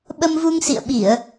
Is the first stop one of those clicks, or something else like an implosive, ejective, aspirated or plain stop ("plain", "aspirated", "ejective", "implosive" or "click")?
implosive